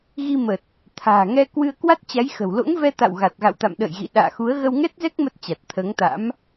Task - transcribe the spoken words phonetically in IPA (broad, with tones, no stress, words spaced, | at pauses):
ɣi˧mə˨˩t̚ | t̪ʰa̤ː˨˩ŋɛ˧ kwɨ˧ə̯kwa˦˥t̚t͡ɕa˨˦j xə̤˨˩wlo̰˧˥ŋvɛ˧t̪a̰˧˨w ɣa˨˩t̚ɣa̰˧˨wt̪a̰˧˨mɗə̰ː˧˨j ɣḭ˧˨ ɗa̰ː˧˨xu˨˦ə̯ ɣə˧wŋɛ˦˥t̚zɛ˦˥k̚ mə˦˥t̚t͡ɕa˨˩t̚t̪ʰəː˨˦ŋt̪a̰˧˥m